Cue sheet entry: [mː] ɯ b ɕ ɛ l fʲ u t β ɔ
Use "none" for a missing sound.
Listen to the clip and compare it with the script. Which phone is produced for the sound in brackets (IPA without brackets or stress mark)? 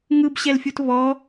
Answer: ŋ